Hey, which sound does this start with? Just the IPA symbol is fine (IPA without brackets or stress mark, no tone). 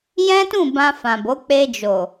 j